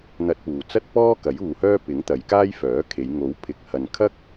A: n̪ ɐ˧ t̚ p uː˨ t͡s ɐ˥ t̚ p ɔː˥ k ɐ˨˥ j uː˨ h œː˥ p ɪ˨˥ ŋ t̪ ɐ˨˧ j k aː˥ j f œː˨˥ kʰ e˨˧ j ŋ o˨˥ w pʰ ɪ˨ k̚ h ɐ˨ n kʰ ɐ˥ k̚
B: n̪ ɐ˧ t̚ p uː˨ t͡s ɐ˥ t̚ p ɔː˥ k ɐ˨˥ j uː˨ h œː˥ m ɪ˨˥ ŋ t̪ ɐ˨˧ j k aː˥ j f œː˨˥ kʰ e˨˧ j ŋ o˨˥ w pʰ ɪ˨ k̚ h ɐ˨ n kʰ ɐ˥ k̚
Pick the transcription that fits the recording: A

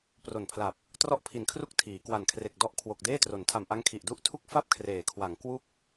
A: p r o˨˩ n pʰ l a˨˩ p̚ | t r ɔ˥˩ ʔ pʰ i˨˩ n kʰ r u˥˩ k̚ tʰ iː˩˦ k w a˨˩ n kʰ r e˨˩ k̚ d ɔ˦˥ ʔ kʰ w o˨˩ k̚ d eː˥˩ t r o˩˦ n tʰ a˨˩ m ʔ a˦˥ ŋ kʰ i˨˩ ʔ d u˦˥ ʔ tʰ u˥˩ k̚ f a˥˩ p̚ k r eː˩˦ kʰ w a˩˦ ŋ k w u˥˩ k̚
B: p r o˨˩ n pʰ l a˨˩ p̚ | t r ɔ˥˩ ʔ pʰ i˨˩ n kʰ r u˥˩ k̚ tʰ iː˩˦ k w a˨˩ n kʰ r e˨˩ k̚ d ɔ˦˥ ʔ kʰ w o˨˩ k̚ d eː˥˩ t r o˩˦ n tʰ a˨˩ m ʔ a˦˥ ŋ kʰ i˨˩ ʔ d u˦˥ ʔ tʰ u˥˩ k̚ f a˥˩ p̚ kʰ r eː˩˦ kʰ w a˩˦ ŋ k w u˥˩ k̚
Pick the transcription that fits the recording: B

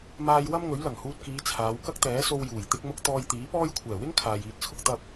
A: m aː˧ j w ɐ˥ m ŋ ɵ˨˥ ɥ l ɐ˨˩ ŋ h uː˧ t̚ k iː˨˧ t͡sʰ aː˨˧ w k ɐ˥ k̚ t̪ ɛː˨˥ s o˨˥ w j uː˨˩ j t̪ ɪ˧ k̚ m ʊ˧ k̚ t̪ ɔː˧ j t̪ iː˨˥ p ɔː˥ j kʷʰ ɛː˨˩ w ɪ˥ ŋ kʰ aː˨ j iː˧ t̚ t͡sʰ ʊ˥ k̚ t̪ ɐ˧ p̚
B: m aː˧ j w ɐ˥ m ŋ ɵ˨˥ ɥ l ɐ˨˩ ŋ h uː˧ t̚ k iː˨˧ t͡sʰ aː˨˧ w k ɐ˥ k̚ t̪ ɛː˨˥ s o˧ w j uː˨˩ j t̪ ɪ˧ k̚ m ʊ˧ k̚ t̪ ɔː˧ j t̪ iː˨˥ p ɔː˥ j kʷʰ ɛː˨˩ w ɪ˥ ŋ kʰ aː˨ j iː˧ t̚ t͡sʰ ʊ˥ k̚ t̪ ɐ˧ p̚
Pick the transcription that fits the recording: B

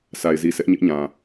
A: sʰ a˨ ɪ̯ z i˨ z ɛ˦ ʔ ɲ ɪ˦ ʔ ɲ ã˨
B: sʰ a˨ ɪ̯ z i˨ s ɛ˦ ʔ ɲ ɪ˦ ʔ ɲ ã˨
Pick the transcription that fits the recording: B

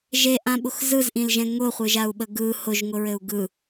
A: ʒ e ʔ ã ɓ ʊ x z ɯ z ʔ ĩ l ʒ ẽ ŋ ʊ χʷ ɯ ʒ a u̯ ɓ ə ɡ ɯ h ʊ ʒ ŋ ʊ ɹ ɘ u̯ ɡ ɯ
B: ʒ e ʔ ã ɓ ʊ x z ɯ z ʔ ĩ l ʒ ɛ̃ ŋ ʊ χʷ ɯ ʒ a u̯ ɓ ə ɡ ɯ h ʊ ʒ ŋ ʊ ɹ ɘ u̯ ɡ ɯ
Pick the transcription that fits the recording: B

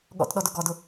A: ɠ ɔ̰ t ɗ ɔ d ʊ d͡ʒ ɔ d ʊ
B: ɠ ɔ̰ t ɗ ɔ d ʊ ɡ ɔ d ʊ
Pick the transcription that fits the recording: B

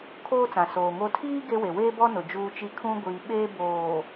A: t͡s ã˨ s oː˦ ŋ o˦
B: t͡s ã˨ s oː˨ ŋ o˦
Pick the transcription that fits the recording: B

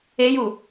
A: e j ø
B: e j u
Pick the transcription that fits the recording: B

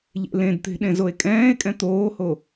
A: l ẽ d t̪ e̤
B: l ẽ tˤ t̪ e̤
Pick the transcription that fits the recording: A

